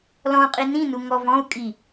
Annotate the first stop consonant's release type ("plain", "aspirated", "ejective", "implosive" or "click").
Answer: ejective